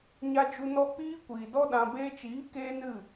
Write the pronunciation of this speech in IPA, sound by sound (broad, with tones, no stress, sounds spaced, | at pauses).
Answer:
ɲ a˧ d͡ʒ u˧ n ɔ˧ k͡p iː˦ kʷ iː˨ d ɔ˦ ɗ ã˧ b eː˧ t͡ʃ iː˨˦ k eː˦ n ɨ˦˨